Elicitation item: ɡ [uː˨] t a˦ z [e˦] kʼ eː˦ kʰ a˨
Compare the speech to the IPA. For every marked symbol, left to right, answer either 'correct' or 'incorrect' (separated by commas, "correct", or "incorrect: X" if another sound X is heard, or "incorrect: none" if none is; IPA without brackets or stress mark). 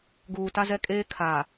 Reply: correct, incorrect: ɛ˦